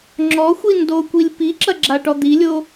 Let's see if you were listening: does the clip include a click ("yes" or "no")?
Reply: yes